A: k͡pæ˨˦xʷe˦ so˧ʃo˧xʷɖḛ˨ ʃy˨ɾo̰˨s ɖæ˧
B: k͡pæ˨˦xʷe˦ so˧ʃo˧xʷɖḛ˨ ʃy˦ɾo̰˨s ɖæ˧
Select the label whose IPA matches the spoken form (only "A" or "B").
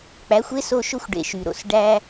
A